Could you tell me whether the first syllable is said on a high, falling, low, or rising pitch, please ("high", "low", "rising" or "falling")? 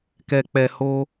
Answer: low